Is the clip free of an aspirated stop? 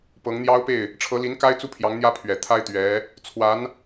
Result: no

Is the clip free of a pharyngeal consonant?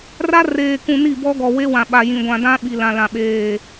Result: yes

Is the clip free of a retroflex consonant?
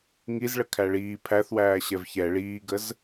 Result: no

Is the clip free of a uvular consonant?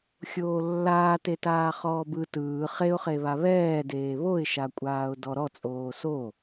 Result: no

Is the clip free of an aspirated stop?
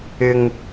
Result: yes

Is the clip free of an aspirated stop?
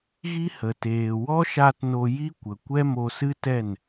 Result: yes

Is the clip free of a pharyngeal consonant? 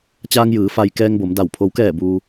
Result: yes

